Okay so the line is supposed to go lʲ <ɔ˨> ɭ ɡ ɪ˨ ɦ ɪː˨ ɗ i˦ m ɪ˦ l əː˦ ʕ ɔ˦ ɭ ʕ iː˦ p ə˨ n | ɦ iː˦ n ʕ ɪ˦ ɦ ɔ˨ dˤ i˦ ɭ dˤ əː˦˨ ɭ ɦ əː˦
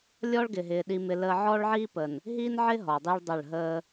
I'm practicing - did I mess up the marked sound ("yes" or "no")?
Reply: yes